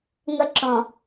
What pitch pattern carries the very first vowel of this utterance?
high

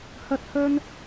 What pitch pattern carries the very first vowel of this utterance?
high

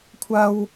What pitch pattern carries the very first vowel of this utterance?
high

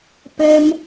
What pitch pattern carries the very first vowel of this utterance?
high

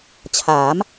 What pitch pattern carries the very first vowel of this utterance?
rising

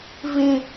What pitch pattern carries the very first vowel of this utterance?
high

